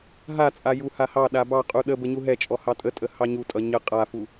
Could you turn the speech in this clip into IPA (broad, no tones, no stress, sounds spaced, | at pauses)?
ɦ a t͡sʼ a j u h a h ɑ ɗ a b ɑ qʼ u ɗ ə b ə ɲ u ɦ ɛ t͡ʃʼ ɔ h ɑ tʼ ə tʼ ə h ɑ ɲ u tʼ ʌ ɲ ə qʼ a f u